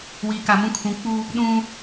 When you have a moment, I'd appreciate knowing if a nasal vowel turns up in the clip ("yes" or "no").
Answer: yes